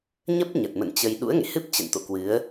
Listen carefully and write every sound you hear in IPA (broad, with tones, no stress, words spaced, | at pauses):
ɲə˦˥p̚ ɲə˨˩t̚mə̰˧˨nt͡ɕə˧j ɗṵ˧˥ə̯ŋḛ˧˨hɨ˦˥p̚ t͡ɕə̰˧˨nt̪o̰˧˨kwɨ˨˦ə̯